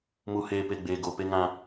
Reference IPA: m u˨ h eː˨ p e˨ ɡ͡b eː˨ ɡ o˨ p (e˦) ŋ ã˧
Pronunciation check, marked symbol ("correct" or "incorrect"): correct